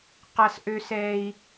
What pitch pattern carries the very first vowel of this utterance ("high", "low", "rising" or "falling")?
high